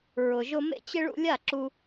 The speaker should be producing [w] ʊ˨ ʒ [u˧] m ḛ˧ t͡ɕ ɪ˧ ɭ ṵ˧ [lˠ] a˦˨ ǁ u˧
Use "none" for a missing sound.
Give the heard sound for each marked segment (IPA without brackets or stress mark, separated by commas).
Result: ɹ, ʊ˧, lʲ